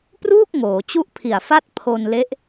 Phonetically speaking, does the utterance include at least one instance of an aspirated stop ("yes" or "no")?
yes